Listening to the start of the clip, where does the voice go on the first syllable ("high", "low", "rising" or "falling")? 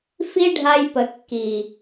high